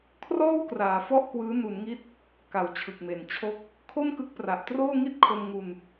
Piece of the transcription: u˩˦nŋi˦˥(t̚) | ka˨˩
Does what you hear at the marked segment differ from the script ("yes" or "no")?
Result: no